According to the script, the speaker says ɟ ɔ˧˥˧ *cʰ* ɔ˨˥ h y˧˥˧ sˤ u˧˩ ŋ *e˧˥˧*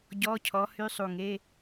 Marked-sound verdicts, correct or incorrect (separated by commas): correct, correct